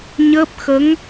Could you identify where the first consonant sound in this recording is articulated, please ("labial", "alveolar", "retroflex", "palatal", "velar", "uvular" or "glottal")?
palatal